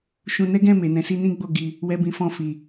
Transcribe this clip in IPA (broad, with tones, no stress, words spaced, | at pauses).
ʃũ˧nɛ˦ɡɛ̃˦˨ me˨nɛ̃˨˦si˦ nĩ˦ɡ͡bo˦˨ɡi˧ | wɛ˦bĩ˧ fɔ̃˧fi˨